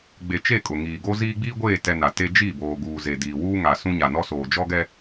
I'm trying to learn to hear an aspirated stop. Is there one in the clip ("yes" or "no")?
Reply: no